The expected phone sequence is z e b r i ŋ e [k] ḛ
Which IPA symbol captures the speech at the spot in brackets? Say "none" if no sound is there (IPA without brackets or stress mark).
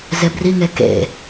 k